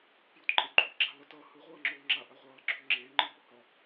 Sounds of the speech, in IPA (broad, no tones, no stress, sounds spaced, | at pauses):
p j u t ǃʼ e ɡ͡ǃ u ʔ ɡ͡ǁ a l ʌ t ʌ h ɯ ʁʷ ʌː ŋ͡ǁ oː ŋ͡ǁ a ʔ a ʁʷ ʌː ɡ͡ǁ ɵː ŋ͡ǁ eː ŋ͡ǃ ɯ b o h ɒ